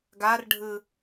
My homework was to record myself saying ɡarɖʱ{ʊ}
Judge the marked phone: incorrect: ɯ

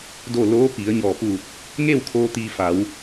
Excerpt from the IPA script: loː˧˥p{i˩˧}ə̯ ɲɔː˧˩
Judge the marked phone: correct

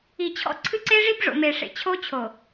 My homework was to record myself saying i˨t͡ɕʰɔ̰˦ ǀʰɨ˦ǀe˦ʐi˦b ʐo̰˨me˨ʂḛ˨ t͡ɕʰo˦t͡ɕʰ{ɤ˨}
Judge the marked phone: incorrect: o˨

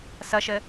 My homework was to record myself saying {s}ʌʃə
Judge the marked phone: correct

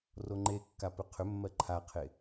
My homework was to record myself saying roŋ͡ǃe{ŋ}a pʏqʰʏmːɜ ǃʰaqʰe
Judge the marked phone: incorrect: kː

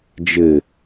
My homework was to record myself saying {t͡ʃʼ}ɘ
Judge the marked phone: incorrect: d͡ʒ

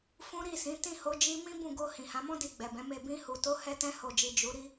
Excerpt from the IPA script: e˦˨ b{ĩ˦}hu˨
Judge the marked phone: incorrect: ĩ˧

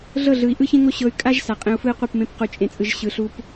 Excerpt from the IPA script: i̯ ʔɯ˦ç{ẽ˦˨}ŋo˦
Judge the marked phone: incorrect: ẽ˦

